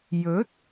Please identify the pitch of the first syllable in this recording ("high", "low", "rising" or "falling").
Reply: rising